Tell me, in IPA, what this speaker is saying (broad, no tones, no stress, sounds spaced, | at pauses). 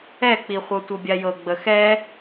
ɛ k͡p i χʷ ɤ tʷ ɤ bʲ a j ɤ ɡ͡b ə x ɛ